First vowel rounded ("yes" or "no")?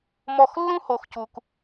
yes